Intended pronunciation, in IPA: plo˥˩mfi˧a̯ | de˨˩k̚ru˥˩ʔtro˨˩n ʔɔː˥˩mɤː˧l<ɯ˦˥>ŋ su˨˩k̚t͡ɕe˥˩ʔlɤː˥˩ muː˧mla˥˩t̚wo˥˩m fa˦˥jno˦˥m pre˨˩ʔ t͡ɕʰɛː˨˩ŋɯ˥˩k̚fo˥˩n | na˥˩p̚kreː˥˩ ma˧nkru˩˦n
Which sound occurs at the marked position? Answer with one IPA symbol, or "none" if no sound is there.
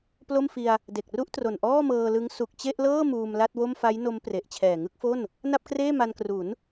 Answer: ɯ˦˥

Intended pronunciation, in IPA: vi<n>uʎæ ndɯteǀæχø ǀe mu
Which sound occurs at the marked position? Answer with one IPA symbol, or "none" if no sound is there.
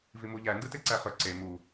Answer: m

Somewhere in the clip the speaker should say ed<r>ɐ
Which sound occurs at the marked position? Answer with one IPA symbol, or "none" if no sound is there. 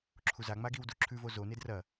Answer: r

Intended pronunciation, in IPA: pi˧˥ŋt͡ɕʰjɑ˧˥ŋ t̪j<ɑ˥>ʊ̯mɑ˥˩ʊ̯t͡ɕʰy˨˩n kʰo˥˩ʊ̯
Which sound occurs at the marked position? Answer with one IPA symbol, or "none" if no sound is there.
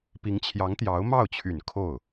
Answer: ɑ˧˥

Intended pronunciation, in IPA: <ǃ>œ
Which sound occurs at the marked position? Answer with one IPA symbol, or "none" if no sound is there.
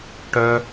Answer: ʈ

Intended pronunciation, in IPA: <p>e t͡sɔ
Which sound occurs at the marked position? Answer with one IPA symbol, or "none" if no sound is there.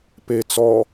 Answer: p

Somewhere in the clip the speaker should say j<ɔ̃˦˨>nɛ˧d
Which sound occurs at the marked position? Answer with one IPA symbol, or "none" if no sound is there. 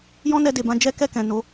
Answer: ɔ̃˦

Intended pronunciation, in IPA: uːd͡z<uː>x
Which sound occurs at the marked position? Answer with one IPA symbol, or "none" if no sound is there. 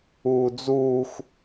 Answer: uː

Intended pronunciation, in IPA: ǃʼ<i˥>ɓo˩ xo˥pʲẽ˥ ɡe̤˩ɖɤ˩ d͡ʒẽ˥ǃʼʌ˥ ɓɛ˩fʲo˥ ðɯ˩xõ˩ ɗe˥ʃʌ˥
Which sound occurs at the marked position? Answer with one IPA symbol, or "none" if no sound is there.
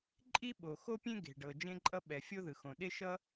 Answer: i˥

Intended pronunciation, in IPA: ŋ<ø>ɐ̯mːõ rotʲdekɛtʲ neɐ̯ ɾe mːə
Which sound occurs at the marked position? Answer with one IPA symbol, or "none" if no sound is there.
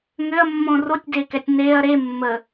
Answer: ø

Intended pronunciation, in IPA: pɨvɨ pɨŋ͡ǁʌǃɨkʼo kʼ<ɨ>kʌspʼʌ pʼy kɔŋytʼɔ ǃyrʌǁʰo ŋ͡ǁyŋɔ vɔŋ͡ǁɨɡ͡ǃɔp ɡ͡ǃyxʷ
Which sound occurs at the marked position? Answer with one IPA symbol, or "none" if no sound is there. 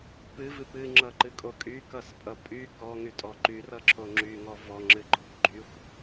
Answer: y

